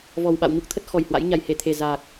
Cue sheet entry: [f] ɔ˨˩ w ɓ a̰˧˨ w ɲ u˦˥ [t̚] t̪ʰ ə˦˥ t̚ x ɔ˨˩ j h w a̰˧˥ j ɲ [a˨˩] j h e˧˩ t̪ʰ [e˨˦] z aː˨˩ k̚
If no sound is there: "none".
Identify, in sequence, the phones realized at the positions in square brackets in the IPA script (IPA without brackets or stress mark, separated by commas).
v, k̚, a˨˩, e˨˩